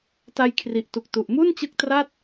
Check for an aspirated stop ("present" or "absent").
present